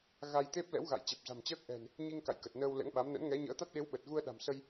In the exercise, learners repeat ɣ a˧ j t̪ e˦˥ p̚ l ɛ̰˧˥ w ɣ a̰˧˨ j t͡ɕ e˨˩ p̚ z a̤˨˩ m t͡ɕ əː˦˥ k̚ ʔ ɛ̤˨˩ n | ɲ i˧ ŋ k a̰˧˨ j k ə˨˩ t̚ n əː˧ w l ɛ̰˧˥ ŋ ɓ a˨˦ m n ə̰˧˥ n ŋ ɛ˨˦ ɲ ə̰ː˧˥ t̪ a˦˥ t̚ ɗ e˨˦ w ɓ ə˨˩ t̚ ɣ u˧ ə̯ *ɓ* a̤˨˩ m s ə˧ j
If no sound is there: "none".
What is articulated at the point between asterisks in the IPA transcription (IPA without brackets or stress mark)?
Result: ɗ